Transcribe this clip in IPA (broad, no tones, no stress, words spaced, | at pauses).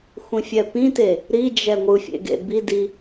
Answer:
xʷĩfʲɛpĩte | ɾid͡ʒɛ ŋʷɯfʲḛ ɡḛbidi